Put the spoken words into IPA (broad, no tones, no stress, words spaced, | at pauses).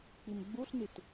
k͡pimɡ͡buɬnit